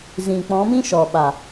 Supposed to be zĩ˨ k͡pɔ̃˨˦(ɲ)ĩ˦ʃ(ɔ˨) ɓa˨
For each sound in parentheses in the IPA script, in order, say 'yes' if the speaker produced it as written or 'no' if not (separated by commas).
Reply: no, yes